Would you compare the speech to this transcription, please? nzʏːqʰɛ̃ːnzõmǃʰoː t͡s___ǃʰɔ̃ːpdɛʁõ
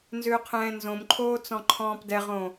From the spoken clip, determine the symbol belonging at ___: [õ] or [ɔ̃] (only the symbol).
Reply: ɔ̃